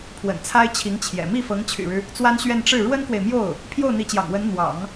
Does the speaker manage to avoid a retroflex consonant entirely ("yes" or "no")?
no